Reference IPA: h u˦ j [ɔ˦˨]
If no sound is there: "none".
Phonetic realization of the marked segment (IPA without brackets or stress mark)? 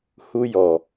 ɔ˨